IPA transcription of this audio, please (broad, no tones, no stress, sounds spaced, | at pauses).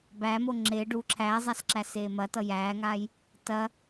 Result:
b æ m o ŋ͡ǁ e ɖ u ǁʰ æː zˤ a s ǁ æ s eː m ɐ t ʌ j æː ŋ aː j | t ɐ